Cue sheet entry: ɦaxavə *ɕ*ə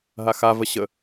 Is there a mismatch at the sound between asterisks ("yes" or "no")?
no